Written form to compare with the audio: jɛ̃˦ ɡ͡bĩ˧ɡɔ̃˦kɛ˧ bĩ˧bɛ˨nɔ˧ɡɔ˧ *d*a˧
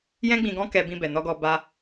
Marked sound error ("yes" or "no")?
yes